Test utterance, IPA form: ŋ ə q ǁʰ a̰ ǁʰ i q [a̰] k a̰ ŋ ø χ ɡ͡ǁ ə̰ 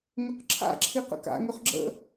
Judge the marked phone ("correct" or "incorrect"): incorrect